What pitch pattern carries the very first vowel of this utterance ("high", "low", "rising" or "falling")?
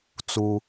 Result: high